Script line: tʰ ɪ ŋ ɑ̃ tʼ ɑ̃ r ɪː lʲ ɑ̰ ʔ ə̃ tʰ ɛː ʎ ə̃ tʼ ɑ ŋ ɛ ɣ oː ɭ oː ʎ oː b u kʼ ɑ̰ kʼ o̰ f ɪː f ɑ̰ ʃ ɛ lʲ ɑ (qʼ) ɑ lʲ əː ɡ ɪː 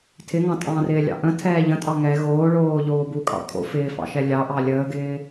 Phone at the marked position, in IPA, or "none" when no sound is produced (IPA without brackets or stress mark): ʔ